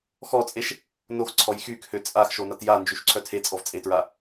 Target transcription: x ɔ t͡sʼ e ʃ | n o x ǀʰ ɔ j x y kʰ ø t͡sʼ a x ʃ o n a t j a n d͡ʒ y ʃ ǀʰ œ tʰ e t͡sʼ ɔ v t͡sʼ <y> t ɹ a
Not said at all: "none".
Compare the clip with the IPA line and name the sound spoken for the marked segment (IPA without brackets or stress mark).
e